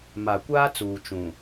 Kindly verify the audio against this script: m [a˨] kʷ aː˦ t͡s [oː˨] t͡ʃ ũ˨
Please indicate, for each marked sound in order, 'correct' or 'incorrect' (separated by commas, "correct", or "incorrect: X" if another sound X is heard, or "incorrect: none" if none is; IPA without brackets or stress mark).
correct, incorrect: uː˨